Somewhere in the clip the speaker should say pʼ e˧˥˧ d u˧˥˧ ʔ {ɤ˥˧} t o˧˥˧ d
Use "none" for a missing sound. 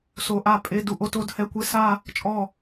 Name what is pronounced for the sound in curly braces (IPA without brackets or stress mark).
o˥˧